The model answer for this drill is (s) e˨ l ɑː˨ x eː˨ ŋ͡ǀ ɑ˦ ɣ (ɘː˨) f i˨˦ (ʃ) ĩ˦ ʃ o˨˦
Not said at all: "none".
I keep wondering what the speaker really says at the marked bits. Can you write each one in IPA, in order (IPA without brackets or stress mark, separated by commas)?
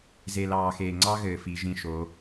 z, ɘː˨, ʒ